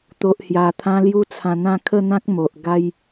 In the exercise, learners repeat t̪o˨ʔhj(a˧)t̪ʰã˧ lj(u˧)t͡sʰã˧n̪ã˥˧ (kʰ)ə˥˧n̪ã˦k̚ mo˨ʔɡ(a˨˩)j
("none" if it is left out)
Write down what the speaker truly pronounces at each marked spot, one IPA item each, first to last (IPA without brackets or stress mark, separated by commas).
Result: a˨˩, u˦, kʰ, a˦